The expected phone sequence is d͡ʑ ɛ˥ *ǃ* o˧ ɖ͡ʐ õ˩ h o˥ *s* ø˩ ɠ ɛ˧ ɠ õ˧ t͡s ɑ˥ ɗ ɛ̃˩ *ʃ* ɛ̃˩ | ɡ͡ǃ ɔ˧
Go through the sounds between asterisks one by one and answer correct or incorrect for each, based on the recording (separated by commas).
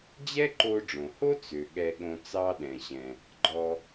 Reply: correct, incorrect, incorrect